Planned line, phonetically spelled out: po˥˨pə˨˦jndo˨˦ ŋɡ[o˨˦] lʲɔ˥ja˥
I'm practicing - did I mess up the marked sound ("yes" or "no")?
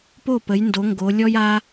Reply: no